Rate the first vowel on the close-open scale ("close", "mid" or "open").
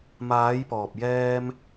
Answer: open